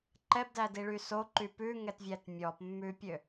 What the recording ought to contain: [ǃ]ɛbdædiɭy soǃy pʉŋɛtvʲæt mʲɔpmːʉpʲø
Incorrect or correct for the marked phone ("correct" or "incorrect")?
correct